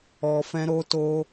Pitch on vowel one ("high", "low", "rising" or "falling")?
low